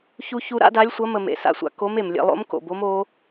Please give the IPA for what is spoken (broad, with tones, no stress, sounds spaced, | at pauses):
ç u˥ ç u˥ ɾ a̰˥ d a˧˥ lʲ sʷ ɐ˧˥ m ə˧ m ḛ˩ s a̰˧ sʷ a̰˧ k o˧˥ m e˩ m lʲ ḛ˧ lˠ o̰˧˥ m k o̰˩ b o˧˥ m o˧˥